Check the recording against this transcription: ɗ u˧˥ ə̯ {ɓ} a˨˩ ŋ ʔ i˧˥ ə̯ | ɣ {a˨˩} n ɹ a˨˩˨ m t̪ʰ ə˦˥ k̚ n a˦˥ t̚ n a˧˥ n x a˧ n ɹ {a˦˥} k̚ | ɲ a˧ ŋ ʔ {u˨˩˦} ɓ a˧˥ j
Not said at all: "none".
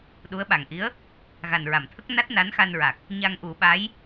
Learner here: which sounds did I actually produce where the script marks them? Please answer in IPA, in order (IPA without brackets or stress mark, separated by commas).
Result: ɓ, a˨˩, a˨˩, u˨˩˦